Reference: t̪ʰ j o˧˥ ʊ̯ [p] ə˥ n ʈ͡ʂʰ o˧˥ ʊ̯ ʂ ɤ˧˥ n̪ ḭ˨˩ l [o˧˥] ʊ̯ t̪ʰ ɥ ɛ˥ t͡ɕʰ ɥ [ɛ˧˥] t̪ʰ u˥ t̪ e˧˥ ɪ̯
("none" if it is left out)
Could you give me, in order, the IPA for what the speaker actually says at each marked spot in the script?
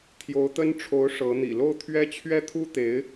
t̪, o˥˩, ɛ˥

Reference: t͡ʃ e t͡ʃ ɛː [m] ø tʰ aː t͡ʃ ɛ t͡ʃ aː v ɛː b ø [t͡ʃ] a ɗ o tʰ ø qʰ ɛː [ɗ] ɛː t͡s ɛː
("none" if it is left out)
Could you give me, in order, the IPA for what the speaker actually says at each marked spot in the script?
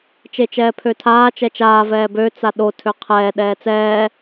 pʰ, t͡s, ɗ

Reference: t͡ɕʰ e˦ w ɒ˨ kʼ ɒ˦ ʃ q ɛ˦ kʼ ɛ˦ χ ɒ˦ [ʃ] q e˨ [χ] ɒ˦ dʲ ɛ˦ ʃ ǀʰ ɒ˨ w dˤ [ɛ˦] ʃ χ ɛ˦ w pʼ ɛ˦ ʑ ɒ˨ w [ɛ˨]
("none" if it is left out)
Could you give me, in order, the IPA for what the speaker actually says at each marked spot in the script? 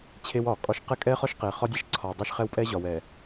ʃ, χ, e˦, ɛ˨

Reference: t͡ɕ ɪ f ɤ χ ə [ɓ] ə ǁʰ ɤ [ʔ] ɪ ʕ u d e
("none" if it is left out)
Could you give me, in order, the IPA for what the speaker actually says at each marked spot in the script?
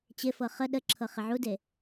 ɗ, χ

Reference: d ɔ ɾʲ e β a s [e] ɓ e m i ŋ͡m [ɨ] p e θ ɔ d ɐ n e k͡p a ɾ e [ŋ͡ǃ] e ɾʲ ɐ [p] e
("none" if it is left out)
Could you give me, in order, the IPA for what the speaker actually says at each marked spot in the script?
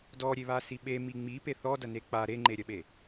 i, i, ŋ͡ǃ, ɓ

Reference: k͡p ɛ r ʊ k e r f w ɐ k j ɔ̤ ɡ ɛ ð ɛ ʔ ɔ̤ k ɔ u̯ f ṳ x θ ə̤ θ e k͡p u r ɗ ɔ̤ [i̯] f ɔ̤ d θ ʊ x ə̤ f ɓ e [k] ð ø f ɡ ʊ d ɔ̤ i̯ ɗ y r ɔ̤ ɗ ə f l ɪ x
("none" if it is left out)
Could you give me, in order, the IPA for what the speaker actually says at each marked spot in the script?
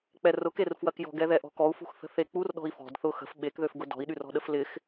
i̯, k

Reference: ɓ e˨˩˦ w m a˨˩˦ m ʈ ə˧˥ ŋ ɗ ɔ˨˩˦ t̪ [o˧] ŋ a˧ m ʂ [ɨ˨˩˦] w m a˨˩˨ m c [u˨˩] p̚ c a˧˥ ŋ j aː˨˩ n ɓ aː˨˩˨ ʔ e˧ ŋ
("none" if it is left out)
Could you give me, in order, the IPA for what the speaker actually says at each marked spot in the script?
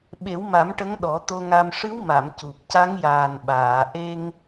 o˧, ɨ˧˥, u˨˩

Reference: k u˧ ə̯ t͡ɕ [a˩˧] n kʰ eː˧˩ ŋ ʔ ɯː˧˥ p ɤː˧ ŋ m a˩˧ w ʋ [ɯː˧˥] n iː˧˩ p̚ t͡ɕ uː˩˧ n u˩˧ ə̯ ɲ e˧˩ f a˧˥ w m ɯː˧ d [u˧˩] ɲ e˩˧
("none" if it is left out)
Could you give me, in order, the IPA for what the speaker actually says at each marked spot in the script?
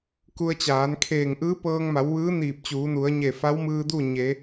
aː˩˧, ɯː˧˥, u˥˨

